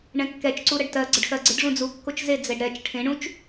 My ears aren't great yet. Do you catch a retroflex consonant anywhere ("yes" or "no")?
yes